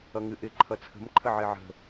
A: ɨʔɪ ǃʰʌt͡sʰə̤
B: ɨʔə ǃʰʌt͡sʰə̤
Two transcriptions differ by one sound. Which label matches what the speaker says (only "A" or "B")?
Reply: A